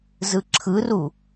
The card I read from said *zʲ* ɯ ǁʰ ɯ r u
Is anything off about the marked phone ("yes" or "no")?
yes